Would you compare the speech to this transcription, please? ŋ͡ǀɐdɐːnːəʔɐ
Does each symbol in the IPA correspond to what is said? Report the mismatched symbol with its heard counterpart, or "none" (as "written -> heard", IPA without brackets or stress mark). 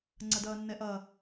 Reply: ə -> ɛ